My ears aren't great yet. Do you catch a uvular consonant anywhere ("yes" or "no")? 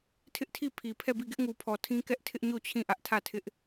no